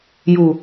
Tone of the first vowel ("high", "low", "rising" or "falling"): low